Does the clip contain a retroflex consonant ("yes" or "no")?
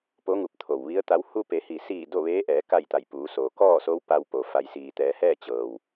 no